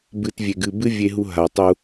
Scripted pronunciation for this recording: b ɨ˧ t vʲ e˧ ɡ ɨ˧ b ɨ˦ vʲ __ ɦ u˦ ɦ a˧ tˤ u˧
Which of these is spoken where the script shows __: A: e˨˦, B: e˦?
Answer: B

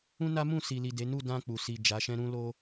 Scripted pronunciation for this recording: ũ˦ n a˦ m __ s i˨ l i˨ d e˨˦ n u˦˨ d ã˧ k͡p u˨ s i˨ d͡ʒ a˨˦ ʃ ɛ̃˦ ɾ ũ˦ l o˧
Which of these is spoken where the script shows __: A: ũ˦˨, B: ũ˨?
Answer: A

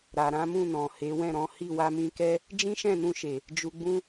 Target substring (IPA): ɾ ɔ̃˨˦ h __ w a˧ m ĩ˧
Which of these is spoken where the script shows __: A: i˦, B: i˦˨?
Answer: B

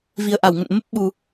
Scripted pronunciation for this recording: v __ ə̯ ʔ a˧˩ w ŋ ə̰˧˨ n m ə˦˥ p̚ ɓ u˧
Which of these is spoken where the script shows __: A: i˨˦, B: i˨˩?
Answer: B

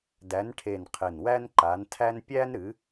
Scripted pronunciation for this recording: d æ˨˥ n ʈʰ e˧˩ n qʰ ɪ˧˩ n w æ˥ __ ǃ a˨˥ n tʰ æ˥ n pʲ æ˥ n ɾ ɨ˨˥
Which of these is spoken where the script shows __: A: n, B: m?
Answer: A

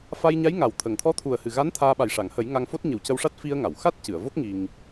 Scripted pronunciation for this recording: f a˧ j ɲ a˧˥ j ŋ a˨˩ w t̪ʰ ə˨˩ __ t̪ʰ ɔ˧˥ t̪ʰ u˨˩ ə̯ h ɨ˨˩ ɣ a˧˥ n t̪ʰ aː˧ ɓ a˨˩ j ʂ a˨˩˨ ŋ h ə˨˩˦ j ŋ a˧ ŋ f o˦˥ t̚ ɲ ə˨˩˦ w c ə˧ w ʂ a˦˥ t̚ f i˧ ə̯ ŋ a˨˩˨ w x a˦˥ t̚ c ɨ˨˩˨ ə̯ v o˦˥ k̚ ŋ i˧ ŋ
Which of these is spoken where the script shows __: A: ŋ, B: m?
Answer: A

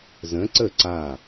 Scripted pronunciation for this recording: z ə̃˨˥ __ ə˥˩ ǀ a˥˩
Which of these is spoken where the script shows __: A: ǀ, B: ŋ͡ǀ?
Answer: A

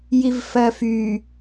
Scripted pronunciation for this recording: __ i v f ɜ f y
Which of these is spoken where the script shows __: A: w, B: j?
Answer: B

